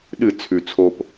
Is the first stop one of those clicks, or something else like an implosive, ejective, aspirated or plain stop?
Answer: implosive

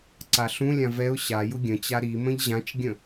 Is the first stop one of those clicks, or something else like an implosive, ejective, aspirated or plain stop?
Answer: click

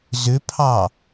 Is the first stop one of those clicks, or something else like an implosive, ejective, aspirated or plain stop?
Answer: aspirated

